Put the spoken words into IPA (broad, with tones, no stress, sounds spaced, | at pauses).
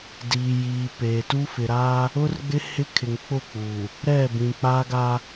d iː˨ j iː˨ p eː˨ t u˦ f ɪ˨ ɾ aː˦ | ʊ˦ r ɡ͡b ɪ˦ h ɪ˦ kʰ ɪ˨ ŋ k͡p ʊ˦˨ k͡p uː˨ | ɾ ɛ˦˨ b ĩ˨ k͡p a˦ ɡ a˦